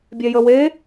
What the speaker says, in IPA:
bʲ ɛ j ə w e

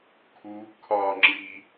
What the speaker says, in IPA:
kʰ u kʰ ɒ ŋ͡ǁ i

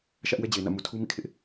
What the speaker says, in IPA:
ʃ ä˦ ʔ w ɛ˦ d͡ʑ e˨ ɪ̯ n ä̰˦˨ m u˨ tʰ u˦ m ḭ˦˨ kʰ ɪ˦ ʔ

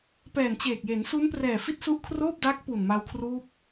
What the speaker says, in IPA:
p ɛː˨˩ n t͡ɕ eː˨˩ k̚ j e˩˦ n s u˦˥ n p r ɛː˨˩ f i˥˩ t̚ s u˦˥ ʔ kʰ r oː˥˩ p̚ d aː˦˥ k̚ p u˨˩ n m a˧ w kʰ r uː˦˥ p̚

